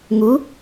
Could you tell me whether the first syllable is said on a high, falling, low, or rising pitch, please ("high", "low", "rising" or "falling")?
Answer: rising